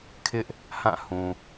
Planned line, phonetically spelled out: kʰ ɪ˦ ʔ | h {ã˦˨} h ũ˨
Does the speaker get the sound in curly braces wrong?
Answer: no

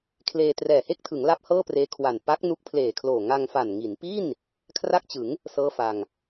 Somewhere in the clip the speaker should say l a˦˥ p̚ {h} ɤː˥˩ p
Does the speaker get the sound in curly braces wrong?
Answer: no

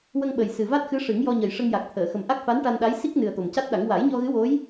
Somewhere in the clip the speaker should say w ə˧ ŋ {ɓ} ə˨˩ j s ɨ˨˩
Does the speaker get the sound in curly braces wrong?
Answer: no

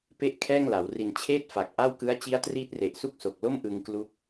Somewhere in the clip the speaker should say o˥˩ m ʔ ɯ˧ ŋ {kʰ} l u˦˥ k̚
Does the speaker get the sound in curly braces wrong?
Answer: yes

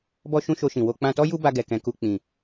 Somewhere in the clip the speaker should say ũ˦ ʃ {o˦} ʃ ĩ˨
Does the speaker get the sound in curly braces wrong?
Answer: yes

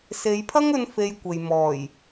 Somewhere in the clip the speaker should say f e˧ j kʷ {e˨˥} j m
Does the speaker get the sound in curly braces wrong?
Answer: yes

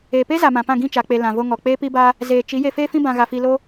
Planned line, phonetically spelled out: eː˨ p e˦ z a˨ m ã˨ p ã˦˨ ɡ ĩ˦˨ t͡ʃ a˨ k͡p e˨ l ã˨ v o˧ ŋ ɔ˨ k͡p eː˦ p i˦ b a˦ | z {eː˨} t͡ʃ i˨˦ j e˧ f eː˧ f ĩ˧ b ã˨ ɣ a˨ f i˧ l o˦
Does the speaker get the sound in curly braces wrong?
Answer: no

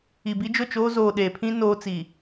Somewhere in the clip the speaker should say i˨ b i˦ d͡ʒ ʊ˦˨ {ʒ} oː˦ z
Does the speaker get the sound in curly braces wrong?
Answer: yes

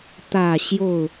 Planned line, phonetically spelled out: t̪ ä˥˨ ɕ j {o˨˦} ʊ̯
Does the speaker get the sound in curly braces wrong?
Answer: yes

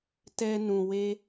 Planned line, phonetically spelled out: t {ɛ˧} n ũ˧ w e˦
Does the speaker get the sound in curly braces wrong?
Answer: no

